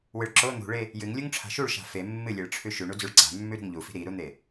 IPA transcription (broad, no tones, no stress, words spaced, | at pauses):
wɨɭǁo n̪ṳɭe | jɨŋ lʲuŋʈ͡ʂʰa̤ʃuɭʃa̤ fe mːɨlʲeɭʈ͡ʂʰʉ ʃʉɳud͡zʉɭ ǀa̤mːʉ ɾṳŋʎufi̤ ɾiɾun̪e